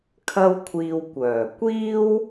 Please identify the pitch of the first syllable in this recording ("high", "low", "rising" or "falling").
high